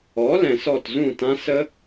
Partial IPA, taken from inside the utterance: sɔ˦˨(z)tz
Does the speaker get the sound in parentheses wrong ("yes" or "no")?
yes